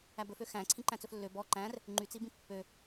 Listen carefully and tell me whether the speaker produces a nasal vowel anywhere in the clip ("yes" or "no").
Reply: yes